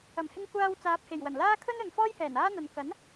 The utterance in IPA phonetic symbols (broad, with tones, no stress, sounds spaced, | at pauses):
ɐ˨˩ m h ɪ˧ ŋ kʷ aː˧ w t͡s aː˨ p̚ h e˨˩ j w ɐ˨˩ n l aː˥ kʰ ɵ˥ n ɵ˨ n f ɔː˥ j h ɛː˨˩ n aː˥ n̪ ɐ˨ n k ɐ˨˥ n